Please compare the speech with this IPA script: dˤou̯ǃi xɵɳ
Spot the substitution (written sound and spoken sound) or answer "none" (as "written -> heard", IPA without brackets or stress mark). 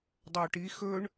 ǃ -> ʈ